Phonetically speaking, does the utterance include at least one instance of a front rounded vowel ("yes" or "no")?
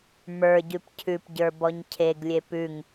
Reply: no